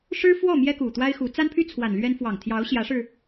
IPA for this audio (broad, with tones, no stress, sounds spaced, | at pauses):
ʂ ɻ̩˥ f w ɔ˥˩ m j ɛ˥ k u˨˩ t̪ w a˥ ɪ̯ x u˧˥ t͡s a˥ n pʰ y˥ t͡sʰ w a˨˩ n l ɥ ɛ˥ n f w ɑ˨˩ ŋ t̪ʰ j ɑ˧˥ ʊ̯ ɕ j ä˧˥ ʂ ɻ̩˧